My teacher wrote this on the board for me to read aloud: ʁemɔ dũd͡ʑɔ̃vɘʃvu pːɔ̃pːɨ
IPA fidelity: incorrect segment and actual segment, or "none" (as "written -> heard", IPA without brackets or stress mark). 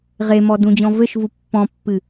none